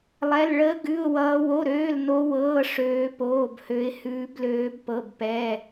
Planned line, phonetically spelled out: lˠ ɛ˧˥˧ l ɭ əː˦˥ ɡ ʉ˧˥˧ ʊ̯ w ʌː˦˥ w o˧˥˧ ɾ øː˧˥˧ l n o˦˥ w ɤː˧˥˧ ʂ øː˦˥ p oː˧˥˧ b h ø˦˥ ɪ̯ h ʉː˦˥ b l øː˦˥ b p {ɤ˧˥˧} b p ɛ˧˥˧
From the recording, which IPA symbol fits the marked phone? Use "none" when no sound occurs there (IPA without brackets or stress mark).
ɤ˧˥˧